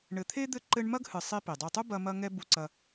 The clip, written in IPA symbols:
ɳ ɘ˨ t̪ʰ e˥ d̪ ɘ˦ ǃ ɘ˦ ɳ m ɐ˥ ɡ h ɨ˨ sˤ i˦ p i˩ dˤ u˨ tˤ u˥ b ɐ˦ m ɐ˦ ŋ ɛ˦ b u˨ ǀ ɐ˨

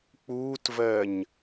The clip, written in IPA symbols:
k͡p uː t v ɜ ɲ

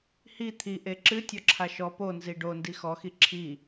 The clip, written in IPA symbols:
h i t̪ʰ i ʔ e ǁ ɨ tʲ ɔ ǁʰ a ʃ ɔ p o n z i ɖ o n d i x ɔ x i ǁʰ i

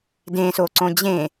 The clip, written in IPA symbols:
d ẽ s o ǀ õ d͡ʑ ẽ

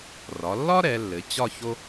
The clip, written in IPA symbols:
r ɒ˩˧ lː ɒ˥ ɾ ɛ˩˧ lː ɘ˩˧ t͡ɕ ɒ˥˧ ç o˥

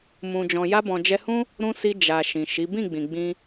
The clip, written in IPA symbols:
m ũ˨ d͡ʒ ɔ̃˨ j a˧ b ɔ̃˨ d͡ʒ ɛ˧ h ũ˦ | ɾ ũ˧ s i˧ d͡ʒ a˨ ʃ ĩ˨ ʃ i˨˦ b ĩ˦˨ ɡ͡b ĩ˨ ɡ͡b ĩ˧

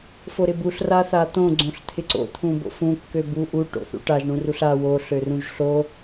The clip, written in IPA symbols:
f o ɾ ɪ b u ɬ r a θ a t̪ õ ɡ͡ǀ õ ɬ t̪ʰ ɪ ǀ o̰ t̪ʰ ũ b o̰ f ũ kː ø b u ʔ u ʈ o̰ θ ṵ ʈ a ʒ ɳ ũ r u ɬ a w o ɬ ø r ũ ʒ ɬ o

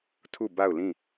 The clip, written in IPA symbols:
tʰ u˦˨ b a˦˨ ʊ̯ l ĩ˦˨

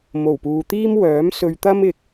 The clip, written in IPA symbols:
m o˨˩ w p uː˨ t̪ iː˥ m w œː˨˥ m s ɵ˧ ɥ t̪ ɐ˥ m ɪ˧ k̚

